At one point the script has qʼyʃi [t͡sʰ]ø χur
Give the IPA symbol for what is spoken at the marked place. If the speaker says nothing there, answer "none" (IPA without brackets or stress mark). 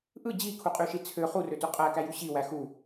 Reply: t͡sʰ